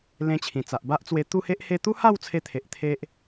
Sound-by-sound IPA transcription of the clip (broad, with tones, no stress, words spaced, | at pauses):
lẽ˧t͡ɕʰĩ˨˩t͡sa˨ʔ ba˦ʔt͡swe˧ t̪u˥˧he˦ʔ he˧t̪u˦ha˥˧w t͡sʰe˦t̪ʰe˨ʔt̪ʰe˦ʔ